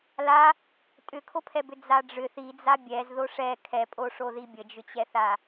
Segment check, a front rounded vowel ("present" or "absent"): present